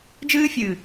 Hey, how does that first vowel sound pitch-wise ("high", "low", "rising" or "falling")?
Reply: high